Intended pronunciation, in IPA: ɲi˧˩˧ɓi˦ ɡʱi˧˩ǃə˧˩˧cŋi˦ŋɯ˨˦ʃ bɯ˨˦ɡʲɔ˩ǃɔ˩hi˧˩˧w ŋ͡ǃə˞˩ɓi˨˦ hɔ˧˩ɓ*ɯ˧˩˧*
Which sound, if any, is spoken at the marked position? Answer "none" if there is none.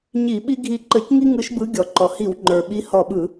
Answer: ɯ˧˩˧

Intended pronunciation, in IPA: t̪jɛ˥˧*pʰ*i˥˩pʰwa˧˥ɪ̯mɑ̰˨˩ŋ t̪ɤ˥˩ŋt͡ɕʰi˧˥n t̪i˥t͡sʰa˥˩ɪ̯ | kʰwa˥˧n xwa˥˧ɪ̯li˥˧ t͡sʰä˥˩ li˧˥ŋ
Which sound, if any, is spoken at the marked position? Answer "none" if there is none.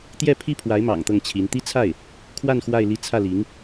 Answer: pʰ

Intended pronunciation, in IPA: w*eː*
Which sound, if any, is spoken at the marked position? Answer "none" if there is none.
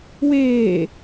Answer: eː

